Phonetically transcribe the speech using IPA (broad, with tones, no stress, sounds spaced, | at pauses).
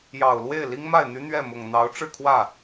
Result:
j ɑ˨˩ ʊ̯ l w e˥˩ ɪ̯ l i˥ ŋ m a˥˩ ɪ̯ n̪ y˥ n̪ ɥ ɛ˥˩ m ʊ˨˩ ŋ n̪ ɑ˧˥ ʊ̯ ʈ͡ʂ ɻ̩˥˧ kʰ w ä˥˩